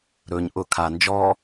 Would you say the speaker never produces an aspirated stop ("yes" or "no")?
no